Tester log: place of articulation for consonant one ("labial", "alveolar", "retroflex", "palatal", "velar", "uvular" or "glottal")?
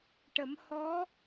retroflex